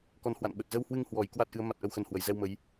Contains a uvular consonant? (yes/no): no